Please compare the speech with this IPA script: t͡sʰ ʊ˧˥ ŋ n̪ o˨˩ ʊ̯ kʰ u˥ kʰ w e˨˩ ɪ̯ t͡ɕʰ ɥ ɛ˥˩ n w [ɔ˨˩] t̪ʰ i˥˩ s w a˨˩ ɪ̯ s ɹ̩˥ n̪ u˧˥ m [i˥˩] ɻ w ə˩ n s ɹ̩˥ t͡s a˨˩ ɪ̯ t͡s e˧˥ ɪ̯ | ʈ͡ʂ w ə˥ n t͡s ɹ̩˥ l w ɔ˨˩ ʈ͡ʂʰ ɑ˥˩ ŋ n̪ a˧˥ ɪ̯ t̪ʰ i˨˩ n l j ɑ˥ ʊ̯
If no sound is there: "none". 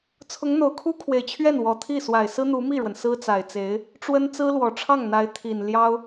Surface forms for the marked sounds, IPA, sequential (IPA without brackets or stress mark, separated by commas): ɔ˨˩, i˥˩